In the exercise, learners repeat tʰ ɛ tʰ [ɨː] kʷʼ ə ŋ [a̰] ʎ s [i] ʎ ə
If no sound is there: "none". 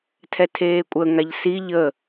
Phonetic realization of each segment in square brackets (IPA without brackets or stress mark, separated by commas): eː, a, i